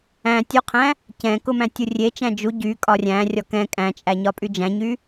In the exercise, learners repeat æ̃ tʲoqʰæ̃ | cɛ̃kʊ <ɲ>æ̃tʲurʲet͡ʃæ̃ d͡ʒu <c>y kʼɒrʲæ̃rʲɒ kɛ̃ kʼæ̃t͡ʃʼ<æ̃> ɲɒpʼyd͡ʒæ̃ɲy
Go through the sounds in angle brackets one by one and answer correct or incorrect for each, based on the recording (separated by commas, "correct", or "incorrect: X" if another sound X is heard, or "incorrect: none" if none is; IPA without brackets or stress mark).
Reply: incorrect: m, incorrect: ɟ, incorrect: æ